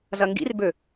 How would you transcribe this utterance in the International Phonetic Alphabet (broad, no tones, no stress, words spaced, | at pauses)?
zɐŋɡḭrbø